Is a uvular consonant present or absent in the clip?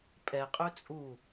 present